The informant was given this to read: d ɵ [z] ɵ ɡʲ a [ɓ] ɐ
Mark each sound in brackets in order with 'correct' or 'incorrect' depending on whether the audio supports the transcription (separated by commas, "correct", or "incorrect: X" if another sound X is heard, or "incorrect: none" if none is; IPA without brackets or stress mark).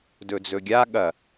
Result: incorrect: d͡z, incorrect: ɠ